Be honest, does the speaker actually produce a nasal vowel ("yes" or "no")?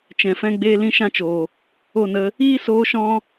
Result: yes